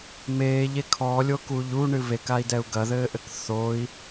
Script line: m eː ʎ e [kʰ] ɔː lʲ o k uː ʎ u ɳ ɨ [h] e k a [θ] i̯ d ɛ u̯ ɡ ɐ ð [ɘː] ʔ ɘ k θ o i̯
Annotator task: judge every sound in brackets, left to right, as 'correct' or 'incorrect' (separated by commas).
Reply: correct, incorrect, incorrect, correct